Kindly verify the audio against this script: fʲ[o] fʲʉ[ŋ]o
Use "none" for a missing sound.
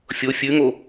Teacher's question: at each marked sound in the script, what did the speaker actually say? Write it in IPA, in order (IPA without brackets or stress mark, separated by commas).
o, ŋ